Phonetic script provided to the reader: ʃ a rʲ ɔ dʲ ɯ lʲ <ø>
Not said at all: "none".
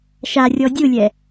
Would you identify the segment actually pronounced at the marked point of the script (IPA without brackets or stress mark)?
ɛ